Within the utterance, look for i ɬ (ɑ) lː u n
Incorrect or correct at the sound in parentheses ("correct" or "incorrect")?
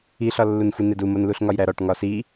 incorrect